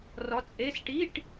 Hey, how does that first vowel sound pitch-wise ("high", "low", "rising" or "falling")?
rising